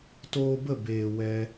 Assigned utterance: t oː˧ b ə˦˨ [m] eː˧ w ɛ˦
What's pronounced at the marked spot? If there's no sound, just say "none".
b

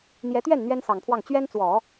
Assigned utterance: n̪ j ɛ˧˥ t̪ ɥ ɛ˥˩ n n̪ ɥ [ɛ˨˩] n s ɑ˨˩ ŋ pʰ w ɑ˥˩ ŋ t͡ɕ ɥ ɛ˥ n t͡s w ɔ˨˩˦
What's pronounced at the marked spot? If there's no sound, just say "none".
ɛ˥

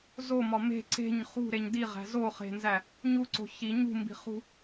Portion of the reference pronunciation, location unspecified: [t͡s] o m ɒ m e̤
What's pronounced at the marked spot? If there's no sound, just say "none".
z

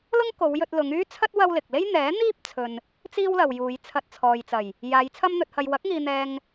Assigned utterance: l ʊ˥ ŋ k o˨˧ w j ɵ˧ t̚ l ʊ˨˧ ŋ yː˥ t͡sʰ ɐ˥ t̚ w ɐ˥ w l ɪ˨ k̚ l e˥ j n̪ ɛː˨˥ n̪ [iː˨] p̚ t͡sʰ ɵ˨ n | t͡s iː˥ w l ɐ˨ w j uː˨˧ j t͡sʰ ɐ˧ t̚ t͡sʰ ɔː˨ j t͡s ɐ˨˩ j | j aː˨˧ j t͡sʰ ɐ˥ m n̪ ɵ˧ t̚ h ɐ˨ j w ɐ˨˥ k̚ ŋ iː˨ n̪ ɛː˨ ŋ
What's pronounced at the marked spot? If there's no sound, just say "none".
iː˥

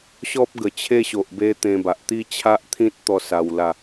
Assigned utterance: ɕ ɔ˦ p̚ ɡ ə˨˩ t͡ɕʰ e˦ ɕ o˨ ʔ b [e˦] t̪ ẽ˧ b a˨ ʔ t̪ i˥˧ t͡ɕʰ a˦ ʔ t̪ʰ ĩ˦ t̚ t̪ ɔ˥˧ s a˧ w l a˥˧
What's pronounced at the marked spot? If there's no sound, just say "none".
e˦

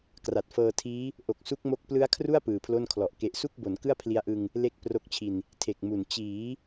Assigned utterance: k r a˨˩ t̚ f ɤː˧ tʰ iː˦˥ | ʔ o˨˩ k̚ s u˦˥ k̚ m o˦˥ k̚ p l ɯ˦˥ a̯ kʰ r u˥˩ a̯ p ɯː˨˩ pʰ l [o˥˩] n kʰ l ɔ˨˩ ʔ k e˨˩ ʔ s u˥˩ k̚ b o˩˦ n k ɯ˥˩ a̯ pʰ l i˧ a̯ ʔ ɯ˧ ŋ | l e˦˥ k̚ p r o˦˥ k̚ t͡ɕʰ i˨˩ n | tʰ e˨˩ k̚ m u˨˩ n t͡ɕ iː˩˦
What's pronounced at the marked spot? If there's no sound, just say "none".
o˥˩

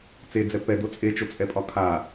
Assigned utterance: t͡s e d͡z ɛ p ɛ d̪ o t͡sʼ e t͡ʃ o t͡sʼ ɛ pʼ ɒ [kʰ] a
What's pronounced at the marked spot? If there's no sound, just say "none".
kʰ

